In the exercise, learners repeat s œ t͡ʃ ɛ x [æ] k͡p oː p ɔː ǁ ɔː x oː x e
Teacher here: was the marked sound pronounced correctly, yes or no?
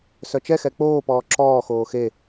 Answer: no